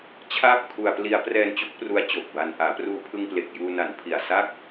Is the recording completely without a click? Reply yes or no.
yes